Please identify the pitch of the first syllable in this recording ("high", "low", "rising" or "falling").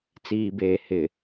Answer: low